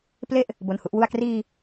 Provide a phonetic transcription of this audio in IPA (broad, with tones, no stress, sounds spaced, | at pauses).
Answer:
p l e˥˩ ʔ | b o˧ n h u˥˩ ʔ w u˥˩ a̯ k r iː˧